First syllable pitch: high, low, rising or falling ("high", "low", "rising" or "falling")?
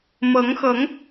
rising